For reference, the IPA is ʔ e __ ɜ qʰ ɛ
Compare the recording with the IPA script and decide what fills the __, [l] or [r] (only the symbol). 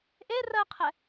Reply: r